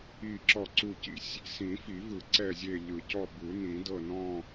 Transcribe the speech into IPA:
i˦˨ ǁ ɔ˦˨ ǀ u˦˨ c ḭ˦˨ sʲ | s ĩ˨˩˦ f i˨˩˦ v ɯ˨˩˦ ǀ ɛ˦˨ zʲ e˦˨ ʎ ɯ˨˩˦ c ɔ˦˨ b ɯ˨˩˦ n ĩ˨˩˦ d ɤ˦˨ n ɔ̃˦˨

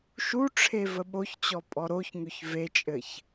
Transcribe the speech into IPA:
ʃ u ʈ͡ʂʰ e v ə ɓ o ç t͡ɕ ɔ pʼ ɔ ɾ o ç ŋ ø ç v e t͡ʃʼ ɘ ç

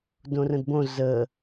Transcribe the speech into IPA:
d õ r ə̃ d b õ z ə

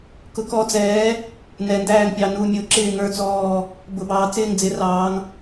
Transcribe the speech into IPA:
k ʊ˨˦ k ɔ˨˦ d͡z ɛː˨˦ | n ɛ˨ n d æː˦˨ ŋ pʲ ɑ˨ n u˨ mʲ ʊ˨˦ ǁ ɪː˦˨ ŋ ə˞˦˨ t͡s ɔː˦˨ | b ʊ˨ b ɑː˨ t͡s ɪː˦˨ ŋ d͡z ɪ˨˦ r ɑː˨˦ ŋ

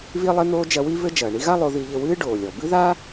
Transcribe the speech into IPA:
β i˥ lˠ e˥ n̪ oː˥ d͡ʒ ɐ˧ w i˥ β ɘ˥ d͡ʒ ɐː˩ ɳ i˥ ɣ a˥ lˠ o˧ ð i˧ ʎ ɘ˧ w ɨː˥ ɖ oː˩ lʲ ɔ˩ b ɨ˥ ð a˥

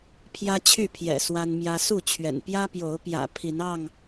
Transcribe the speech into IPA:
pʰ j ä˦ t͡ɕʰ y˥˨ pʰ j ɛ̰˨˩ s w a˦ n m j ä˦ s u˥˨ t͡ɕʰ ɥ ɛ̰˨˩ n p j ä˦ p j o˨˦ ʊ̯ p j ä̰˨˩ pʰ i˨˦ n ɑ˥˨ ŋ

